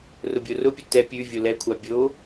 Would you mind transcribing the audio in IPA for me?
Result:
r ʊ bʲ o r ʊ pʲ ʊ t ɛ pʲ ʉ vʲ o l ɛ kʷʰ a bʲ o

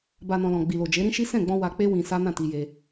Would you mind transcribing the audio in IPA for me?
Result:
b a˨ n ɔ̃˨ l ɔ̃˨ ɡ͡b i˨ l o˨ d͡ʒ e˨˦ ɾ ĩ˦ ʃ i˦ s ɛ̃˦˨ ɡ͡b ɔ̃˧ w a˧ k͡p e˦ w ĩ˧ s a˦ n ã˦˨ t i˧ j e˧

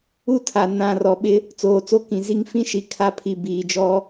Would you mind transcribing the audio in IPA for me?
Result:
u˦˨ tʰ a˨ n ã˨ r ɔ˨ ɓ ɪ˦ | t͡s oː˨ t͡s o˦ k ĩ˨ z i˦ ŋ f ĩ˦ ʃ i˨ kʰ a˦ pʰ i˨ b iː˨ d͡ʒ ɔ˦

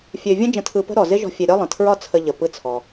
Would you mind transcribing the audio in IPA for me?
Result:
fʲ ø˧ vʲ ə̃˥ d͡ʒ ə̃˧ tʰ ɯ˧ p ə̤˥ ɾ ɔ˩ z ɪ˥ ʒ ɔ̤˧ fʲ e˧ ɾʲ ɒ˥ lˠ ə̃˩ tʰ ɹ ɒ˥ t͡sʰ ə˧ ʎ ə˩ p ɯ˥ t͡sʰ ɔ˩

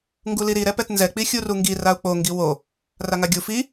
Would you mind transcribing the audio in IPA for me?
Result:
ŋ ɡ u l i ɾ i ɾ ɛ p ɛ t n z ɛ k͡p i xʲ u r u ŋ ɡ i r a u̯ k͡p o ŋ ɡ i w o | r a ŋ a ɡʲ u f i

